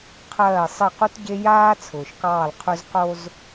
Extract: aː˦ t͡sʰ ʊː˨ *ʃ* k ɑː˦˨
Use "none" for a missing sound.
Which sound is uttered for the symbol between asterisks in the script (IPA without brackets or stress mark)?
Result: ʃ